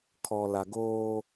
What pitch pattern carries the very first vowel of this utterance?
low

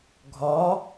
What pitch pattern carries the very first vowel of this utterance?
rising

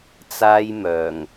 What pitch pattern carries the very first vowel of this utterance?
high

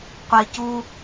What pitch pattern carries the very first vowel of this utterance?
low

